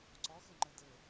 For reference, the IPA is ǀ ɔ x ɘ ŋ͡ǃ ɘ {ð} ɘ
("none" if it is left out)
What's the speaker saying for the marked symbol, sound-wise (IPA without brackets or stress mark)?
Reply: d